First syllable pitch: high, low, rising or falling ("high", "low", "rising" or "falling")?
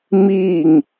falling